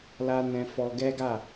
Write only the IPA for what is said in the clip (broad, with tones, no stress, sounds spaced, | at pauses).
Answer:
l a˦ n ɛ̃˦ f ɔ˦ ɡ ɛ˦ ɡ a˦˨